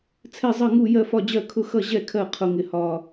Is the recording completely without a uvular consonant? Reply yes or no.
no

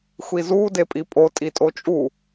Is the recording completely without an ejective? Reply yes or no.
no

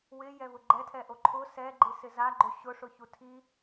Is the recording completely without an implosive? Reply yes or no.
yes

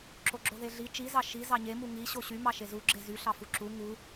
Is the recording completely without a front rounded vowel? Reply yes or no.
no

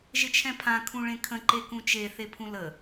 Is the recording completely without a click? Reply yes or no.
no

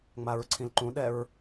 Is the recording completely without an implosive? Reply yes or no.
no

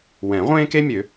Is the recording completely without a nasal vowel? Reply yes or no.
no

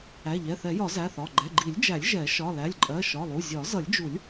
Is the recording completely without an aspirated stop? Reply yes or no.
yes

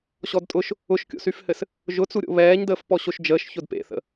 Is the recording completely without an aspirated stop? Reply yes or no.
yes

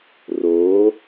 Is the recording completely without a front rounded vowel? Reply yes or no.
yes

